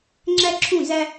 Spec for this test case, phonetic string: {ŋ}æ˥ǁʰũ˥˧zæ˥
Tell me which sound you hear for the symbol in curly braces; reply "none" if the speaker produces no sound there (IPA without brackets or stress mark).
ŋ͡ǁ